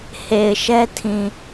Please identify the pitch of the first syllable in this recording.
low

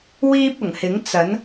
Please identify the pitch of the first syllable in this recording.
high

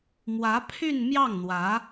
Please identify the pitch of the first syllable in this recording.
rising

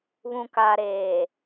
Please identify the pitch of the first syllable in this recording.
low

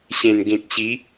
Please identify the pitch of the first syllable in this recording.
low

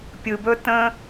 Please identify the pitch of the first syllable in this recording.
low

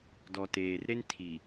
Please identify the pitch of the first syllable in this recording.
low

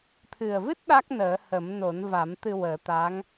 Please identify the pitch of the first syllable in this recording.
low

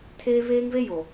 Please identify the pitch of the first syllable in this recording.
high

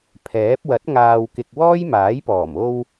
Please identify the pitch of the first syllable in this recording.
rising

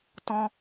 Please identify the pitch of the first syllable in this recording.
high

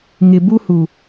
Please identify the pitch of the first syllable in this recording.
low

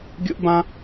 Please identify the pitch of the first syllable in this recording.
high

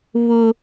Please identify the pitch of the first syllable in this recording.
high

